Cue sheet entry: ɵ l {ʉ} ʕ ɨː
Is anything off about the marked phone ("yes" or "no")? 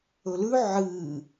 no